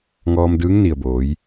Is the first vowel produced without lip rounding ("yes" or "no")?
no